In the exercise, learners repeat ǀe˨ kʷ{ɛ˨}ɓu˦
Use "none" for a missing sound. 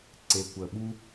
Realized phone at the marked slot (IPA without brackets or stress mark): ə˨